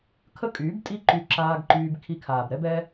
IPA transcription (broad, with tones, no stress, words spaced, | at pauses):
kʰə˦kʼyː˨˦btʼi˦ ǃy˧ǁaː˧ɡ ǃyː˧b kʰi˧kʰaː˨bɾɛ˦bɛ˦